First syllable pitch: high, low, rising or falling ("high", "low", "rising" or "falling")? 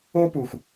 high